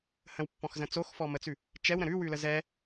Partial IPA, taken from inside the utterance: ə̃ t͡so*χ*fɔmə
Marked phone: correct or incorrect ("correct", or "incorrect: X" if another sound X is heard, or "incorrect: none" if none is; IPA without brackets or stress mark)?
incorrect: x